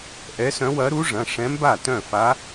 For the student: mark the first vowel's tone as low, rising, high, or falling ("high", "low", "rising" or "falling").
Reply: rising